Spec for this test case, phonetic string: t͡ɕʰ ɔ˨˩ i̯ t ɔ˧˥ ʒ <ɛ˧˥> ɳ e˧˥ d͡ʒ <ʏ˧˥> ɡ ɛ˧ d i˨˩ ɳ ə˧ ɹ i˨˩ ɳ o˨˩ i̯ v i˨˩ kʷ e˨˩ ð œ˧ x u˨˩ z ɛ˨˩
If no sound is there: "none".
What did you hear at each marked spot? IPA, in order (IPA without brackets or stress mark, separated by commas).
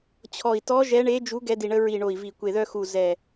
ɛ˧˥, u˧˥